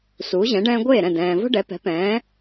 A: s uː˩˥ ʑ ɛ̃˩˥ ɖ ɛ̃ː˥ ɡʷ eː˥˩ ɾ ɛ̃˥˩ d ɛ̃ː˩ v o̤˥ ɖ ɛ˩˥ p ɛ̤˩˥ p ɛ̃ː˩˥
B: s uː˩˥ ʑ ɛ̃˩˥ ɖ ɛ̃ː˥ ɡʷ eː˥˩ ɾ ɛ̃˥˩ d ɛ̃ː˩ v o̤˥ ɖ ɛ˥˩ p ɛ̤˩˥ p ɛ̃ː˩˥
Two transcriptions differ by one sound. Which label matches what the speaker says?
A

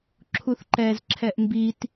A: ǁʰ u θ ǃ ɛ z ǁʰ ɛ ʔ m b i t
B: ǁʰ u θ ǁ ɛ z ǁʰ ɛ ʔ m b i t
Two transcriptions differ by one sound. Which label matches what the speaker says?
A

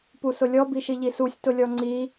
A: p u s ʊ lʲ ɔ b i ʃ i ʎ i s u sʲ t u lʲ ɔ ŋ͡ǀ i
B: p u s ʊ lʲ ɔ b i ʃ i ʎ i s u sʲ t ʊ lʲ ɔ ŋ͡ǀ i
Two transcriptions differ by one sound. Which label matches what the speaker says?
B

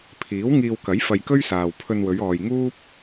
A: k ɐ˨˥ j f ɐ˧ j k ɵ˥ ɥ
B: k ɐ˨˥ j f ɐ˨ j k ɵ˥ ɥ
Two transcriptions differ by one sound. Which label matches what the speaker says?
A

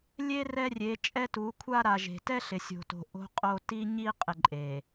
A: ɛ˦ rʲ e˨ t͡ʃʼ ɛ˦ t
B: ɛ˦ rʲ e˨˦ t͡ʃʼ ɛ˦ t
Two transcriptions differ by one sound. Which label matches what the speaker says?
B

